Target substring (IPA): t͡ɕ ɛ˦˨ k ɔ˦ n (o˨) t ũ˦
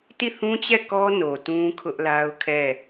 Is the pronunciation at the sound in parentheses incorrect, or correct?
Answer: correct